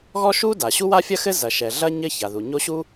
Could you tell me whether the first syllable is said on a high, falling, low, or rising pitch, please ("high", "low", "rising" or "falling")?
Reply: high